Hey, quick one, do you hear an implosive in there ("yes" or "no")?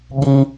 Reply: yes